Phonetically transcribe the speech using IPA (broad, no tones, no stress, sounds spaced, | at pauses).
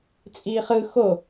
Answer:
t͡sʼ iː χ ɯ x o